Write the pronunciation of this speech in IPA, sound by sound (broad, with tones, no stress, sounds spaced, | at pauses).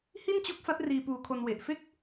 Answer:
h i˥˩ n t͡ɕ o˦˥ k̚ f a˦˥ t̚ r iː˧ p uː˧ kʰ o˧ n w e˨˩ ʔ f e˥˩ k̚